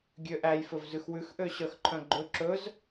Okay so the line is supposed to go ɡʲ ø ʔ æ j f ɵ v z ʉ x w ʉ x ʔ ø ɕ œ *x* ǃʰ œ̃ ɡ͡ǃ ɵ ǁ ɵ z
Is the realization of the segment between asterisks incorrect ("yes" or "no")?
no